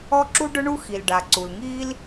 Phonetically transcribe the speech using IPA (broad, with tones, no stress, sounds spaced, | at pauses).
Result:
ɔ˥ ǁ u˥ ɖ ʊ˥ ɳ u˥ x i˩ l ɖ a˩ ǀ u˩ l ŋ iː˥ l